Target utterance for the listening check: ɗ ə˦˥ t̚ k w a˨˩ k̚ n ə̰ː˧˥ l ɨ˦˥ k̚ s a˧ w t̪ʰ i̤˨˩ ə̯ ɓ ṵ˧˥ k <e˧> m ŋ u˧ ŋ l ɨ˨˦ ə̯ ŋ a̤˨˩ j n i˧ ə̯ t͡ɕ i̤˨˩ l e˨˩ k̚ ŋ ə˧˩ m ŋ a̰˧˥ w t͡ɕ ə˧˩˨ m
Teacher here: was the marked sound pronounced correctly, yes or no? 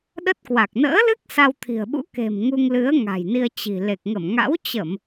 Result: no